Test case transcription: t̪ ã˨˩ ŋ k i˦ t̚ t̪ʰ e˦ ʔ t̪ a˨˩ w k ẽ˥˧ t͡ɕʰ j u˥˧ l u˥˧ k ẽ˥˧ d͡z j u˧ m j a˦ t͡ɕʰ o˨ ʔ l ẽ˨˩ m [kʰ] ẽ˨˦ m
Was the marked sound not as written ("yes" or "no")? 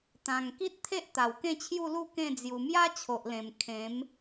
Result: no